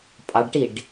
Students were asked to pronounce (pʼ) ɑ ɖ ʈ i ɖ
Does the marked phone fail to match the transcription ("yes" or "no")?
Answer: no